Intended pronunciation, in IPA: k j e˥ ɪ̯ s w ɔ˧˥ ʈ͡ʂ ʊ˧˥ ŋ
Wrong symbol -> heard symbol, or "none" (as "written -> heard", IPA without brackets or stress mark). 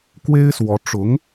j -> w